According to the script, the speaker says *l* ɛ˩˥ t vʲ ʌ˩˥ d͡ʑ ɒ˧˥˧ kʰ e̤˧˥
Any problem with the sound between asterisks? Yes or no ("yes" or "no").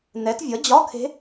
yes